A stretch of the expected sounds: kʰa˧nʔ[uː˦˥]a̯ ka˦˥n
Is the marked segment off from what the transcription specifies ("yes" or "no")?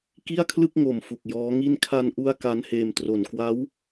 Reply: yes